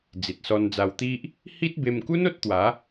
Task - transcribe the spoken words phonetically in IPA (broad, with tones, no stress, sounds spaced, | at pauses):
d͡z i˨ t̚ s ɔ˧ n d͡z a˧ w t̪ i˦ ʔ | h i˦ t̚ b e˧ m k u˦ n o˦ t̚ t̪ w a˨˦